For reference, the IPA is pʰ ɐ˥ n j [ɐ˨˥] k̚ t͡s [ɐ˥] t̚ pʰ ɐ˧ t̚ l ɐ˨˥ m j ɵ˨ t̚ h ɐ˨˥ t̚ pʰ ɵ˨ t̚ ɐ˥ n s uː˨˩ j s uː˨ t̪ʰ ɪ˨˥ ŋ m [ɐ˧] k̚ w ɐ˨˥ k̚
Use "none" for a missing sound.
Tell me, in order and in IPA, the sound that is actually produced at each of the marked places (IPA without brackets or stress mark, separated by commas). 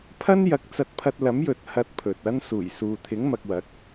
ɐ˨˥, ɐ˧, ɐ˧